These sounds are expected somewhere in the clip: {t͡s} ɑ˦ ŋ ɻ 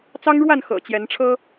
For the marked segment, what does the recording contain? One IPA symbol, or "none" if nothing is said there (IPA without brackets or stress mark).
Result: t͡s